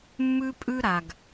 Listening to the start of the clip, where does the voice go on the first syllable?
high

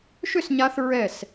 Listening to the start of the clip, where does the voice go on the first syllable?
falling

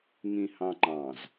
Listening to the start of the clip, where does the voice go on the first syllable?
low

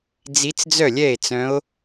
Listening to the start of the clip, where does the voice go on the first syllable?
rising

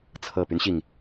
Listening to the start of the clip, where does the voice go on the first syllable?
low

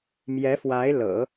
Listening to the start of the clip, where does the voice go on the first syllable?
rising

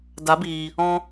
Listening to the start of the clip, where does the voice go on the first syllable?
rising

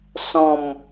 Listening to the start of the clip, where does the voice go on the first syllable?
falling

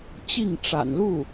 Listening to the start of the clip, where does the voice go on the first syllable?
falling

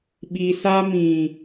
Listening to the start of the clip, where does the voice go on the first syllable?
low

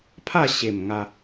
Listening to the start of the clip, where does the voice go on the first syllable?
falling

